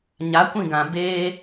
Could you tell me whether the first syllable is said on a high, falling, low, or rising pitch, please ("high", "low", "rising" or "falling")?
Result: rising